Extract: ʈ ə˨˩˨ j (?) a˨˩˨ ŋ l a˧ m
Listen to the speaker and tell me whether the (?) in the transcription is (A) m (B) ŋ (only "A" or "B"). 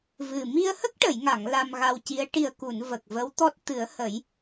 B